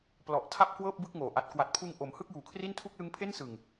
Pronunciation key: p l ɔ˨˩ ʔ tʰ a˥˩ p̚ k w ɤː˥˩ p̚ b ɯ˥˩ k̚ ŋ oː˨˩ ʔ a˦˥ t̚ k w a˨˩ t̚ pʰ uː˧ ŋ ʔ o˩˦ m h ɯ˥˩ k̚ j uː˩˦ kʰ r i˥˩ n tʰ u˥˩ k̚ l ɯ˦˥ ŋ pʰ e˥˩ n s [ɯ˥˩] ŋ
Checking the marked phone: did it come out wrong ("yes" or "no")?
yes